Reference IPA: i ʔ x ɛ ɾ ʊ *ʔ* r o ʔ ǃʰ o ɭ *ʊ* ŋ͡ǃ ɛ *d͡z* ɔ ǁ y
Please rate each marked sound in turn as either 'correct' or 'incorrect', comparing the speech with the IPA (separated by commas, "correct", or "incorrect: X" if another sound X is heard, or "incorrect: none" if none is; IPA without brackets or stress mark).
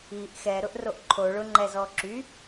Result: correct, correct, incorrect: z